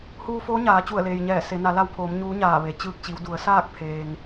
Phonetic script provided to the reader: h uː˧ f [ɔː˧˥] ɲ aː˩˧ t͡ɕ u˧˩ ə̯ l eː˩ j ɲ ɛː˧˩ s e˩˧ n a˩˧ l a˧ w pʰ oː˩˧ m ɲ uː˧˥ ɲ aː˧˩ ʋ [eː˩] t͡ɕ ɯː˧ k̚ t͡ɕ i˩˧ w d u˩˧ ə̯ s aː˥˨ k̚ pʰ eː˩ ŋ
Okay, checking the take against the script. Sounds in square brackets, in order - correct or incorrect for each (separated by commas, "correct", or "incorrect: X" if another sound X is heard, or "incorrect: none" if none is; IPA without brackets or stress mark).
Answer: incorrect: oː˧˥, incorrect: e˩